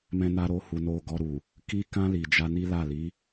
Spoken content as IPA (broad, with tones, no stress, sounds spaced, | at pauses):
m ɛ̃˦ n a˦ ɾ o˦ h u˧ n o˧ ɡ ɔ˧ ɾ u˨ | k i˦ k ã˦ l i˧ d͡ʒ a˦ n i˦ l a˦˨ l i˨˦